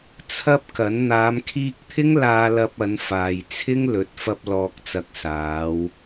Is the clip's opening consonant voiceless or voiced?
voiceless